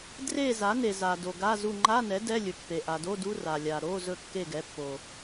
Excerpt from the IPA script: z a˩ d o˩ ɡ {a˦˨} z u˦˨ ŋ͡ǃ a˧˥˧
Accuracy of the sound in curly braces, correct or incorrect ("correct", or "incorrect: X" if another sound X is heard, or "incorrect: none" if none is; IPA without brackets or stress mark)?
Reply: incorrect: a˧˥˧